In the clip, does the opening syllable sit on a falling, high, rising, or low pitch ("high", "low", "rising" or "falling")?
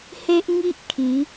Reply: high